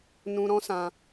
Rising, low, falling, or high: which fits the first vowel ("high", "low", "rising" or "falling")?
high